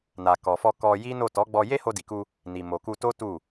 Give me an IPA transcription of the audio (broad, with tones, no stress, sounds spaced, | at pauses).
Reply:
n a˨ k ɔ˨ f ɔ˧ k ɔ˧ j i˦ n o˦˨ t ɔ˨˦ ɡ͡b ɔ˧ j e˦ h o˧ d i˨ k u˧ | n i˨ m o˨ k u˧ t o˦ t u˦˨